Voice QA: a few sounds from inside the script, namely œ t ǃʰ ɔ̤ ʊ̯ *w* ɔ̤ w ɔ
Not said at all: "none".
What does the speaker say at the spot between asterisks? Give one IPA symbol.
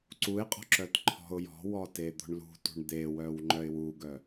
j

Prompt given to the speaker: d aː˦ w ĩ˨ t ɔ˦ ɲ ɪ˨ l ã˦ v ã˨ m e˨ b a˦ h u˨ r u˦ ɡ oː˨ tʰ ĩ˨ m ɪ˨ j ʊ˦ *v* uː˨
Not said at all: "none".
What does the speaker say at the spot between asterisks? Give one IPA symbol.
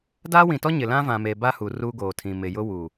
w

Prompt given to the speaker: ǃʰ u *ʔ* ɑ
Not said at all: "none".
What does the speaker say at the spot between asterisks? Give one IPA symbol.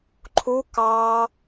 k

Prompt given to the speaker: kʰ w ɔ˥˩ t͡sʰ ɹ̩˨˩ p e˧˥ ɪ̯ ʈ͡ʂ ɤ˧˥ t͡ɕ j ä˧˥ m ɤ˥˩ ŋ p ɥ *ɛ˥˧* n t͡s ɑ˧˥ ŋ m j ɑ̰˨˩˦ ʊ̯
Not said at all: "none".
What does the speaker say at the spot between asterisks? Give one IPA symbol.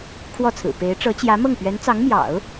ɛ˧˥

